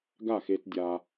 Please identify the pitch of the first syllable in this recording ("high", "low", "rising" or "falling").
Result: falling